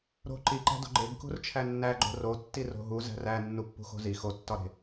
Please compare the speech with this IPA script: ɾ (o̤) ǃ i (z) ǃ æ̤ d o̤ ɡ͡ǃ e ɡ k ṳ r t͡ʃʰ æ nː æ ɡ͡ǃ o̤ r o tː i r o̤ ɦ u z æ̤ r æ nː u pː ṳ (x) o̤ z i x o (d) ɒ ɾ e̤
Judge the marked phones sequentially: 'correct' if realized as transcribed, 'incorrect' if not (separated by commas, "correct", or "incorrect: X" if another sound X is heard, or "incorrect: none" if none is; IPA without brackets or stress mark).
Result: correct, incorrect: none, correct, incorrect: tː